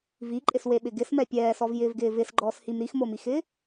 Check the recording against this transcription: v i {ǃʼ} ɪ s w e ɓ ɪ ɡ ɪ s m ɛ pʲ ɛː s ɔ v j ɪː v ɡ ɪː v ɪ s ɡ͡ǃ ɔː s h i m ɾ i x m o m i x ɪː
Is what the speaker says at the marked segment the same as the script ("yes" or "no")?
yes